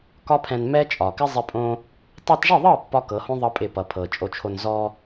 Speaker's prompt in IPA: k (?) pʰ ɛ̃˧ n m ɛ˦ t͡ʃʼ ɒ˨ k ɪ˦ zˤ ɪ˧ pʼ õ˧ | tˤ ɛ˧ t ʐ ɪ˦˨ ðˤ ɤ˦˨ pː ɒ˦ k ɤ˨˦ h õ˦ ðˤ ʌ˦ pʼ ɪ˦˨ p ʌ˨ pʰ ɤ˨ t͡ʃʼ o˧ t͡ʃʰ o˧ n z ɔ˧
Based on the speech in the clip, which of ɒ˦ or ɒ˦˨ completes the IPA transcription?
ɒ˦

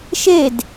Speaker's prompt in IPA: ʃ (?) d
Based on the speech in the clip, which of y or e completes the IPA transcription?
e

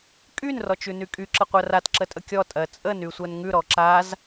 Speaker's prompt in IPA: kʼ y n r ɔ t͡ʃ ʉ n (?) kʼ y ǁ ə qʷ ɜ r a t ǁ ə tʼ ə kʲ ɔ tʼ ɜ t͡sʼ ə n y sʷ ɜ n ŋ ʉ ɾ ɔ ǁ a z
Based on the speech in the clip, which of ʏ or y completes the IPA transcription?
y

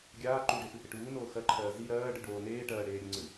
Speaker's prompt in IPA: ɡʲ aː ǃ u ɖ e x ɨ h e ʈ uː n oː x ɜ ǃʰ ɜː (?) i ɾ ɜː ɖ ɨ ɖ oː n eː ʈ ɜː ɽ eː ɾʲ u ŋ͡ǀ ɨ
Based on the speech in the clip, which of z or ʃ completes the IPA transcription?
z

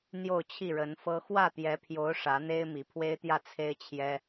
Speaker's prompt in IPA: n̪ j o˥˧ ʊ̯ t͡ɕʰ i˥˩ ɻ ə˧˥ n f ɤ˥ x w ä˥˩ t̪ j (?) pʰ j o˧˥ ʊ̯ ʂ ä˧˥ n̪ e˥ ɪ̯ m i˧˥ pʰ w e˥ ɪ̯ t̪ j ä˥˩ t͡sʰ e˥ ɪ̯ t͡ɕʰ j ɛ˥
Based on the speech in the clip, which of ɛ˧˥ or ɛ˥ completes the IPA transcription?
ɛ˧˥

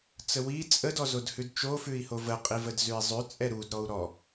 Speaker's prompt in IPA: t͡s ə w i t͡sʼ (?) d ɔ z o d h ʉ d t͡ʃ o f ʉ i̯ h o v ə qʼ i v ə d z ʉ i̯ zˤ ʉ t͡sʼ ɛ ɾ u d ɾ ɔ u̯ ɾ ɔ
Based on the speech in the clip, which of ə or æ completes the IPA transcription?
ə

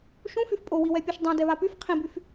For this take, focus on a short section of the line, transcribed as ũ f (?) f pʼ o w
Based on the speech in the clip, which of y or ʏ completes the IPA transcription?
y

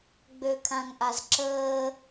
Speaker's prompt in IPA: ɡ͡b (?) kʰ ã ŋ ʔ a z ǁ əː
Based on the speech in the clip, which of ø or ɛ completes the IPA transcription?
ø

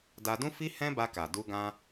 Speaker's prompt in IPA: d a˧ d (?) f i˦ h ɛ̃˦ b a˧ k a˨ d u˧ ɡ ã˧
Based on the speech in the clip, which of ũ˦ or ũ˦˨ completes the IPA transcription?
ũ˦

